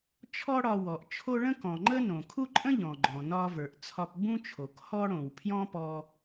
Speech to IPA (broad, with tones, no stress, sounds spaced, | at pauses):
t͡ʃʰ ɔ˥ ɽ ɒ˧ w ɔ˩ ʔ t͡ʃʰ o˥ ɭ ə̃˥ k ɔ̃˩ ŋ͡ǃ ə˥ n õ˩ kʰ u˥ ǃʼ ə̃˥ ʎ ɔ̃˩ ɡ͡ǃ ɔ̃˩ n ɒ˧ v ə˞˩ ʔ t͡sʰ ɒ˧ p b ũ˥ t͡ʃʰ o˩ k h ɔ˧ ɽ õ˩ w pʰ j ɔ̃˧ p ɔ˧